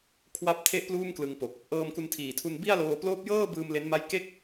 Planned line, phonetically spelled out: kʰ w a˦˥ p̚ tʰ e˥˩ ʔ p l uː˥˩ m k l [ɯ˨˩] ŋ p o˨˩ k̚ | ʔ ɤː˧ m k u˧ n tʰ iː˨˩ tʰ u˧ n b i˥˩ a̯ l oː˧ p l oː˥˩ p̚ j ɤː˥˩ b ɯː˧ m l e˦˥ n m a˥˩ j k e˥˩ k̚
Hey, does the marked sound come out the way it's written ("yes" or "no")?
no